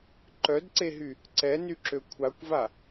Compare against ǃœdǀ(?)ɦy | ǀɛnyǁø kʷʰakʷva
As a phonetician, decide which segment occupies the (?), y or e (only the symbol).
e